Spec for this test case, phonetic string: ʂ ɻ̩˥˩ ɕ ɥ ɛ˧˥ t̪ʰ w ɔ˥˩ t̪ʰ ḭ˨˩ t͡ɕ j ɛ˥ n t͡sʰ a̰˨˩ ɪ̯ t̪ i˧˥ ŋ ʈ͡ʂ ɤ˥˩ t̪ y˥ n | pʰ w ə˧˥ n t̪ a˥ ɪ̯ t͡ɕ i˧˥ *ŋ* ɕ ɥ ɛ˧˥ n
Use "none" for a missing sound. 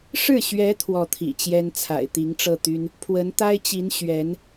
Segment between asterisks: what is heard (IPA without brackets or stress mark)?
n